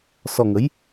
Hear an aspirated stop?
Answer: no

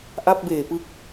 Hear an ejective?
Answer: no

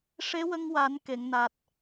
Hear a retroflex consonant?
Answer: yes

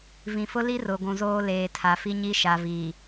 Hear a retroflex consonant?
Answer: no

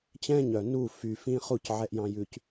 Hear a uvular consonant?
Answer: yes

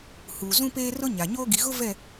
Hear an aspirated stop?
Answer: no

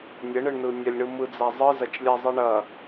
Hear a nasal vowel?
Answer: no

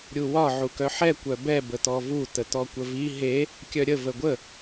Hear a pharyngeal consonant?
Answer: yes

